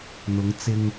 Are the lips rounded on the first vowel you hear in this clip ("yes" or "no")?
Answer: yes